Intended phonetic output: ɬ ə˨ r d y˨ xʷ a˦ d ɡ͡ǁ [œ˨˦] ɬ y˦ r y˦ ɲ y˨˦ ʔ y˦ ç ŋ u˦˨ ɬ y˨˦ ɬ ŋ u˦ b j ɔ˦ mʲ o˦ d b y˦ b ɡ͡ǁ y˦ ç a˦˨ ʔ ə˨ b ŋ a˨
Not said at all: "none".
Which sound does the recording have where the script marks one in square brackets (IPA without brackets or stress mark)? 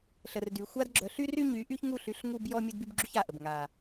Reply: œ˨˦